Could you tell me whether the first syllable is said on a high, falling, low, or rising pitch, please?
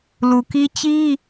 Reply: low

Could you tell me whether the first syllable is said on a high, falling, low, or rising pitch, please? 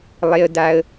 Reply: high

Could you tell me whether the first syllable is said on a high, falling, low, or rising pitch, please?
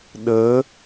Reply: rising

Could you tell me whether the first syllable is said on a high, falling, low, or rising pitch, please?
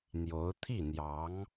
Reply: rising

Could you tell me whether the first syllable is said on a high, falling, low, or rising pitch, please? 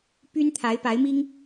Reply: high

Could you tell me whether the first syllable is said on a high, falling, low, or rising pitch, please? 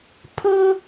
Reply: high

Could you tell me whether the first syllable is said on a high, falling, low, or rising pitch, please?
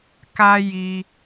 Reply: high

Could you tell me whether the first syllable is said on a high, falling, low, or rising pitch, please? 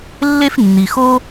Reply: high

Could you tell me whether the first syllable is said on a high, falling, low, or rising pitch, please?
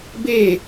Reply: falling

